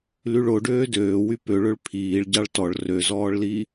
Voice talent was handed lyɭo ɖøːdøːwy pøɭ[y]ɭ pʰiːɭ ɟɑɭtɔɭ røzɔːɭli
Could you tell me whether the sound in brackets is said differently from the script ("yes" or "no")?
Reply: yes